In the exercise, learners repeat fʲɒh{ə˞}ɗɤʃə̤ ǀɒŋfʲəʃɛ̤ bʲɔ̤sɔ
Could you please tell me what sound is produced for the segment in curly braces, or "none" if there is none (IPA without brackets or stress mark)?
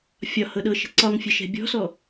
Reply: ɤ